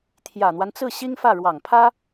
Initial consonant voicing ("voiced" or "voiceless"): voiceless